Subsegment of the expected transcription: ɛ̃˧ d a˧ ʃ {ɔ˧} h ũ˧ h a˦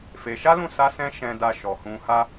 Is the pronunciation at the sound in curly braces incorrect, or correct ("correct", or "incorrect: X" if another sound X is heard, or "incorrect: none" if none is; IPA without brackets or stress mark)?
incorrect: ɔ˨